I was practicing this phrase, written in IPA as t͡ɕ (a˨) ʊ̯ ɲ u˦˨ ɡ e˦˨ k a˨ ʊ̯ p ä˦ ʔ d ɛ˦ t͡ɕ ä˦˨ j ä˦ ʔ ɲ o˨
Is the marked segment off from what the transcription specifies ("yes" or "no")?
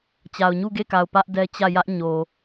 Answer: no